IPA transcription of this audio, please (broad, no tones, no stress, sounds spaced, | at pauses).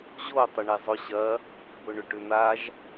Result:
ʑ o tˤ ʏ ɳ e zˤ ʊ ɕ ɐ | b ʊ ɳ ʏ ʈ ʏ n̪ a ʒ